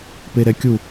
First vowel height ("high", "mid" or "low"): mid